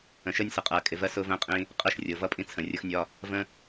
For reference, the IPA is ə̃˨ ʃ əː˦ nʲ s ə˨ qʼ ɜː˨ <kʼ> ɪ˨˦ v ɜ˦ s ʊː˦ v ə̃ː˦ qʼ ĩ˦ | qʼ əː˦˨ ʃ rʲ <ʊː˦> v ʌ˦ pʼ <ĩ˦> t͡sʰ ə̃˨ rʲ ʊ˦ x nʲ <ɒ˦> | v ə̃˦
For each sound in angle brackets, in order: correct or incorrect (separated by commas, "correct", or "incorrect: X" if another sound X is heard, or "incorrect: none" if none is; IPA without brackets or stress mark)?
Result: correct, incorrect: ʊː˨, correct, correct